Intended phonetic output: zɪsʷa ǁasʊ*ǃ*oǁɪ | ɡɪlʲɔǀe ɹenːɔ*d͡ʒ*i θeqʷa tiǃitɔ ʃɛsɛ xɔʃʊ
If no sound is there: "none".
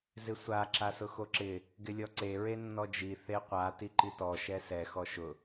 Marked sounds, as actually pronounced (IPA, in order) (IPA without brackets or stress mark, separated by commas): x, d͡ʒ